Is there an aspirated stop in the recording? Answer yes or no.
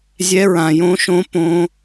no